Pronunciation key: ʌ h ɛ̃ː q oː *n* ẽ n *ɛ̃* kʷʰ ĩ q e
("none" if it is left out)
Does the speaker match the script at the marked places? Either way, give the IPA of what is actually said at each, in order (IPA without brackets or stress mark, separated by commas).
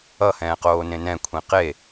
n, ɛ̃